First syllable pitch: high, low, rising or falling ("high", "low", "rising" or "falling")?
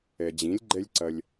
low